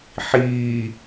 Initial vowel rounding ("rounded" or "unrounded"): unrounded